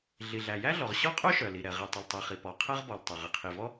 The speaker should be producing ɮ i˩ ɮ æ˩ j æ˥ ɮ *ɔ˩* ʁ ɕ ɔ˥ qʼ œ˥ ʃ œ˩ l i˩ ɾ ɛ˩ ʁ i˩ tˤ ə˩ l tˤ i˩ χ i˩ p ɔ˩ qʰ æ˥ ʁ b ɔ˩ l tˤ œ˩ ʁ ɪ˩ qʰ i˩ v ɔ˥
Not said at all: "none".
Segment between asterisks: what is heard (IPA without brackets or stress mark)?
ɔ˩